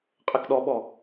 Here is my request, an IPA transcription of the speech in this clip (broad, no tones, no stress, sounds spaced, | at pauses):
qʼ ɛ k ɗ ɔ ɓ ɔ